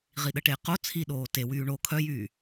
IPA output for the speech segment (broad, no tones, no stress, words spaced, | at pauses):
ʁiɗəʈe qo t͡sʰiɗoː tewyː ɳo kʰœjyː